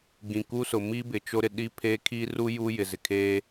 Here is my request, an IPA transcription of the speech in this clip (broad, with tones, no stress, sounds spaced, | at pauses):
ɡ ĩ˨ k u˦ s ʊ˨ m i˦ b ɪ˨ t͡ʃ o˦ ɾ ɪ˨ ɗ i˦ pʰ e˦ kʰ i˦ r u˦ j u˦ j ɪ˨ z ɪ˨ kʰ eː˦